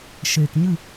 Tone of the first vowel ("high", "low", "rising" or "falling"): low